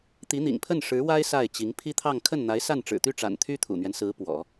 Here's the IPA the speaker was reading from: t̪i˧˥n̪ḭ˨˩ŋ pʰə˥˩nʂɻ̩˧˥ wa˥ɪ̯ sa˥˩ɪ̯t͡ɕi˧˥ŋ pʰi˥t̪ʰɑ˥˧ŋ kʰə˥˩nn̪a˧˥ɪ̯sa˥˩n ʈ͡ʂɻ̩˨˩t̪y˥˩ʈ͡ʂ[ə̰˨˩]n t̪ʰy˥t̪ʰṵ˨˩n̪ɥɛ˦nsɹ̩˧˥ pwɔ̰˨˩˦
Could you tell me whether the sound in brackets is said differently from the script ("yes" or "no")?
yes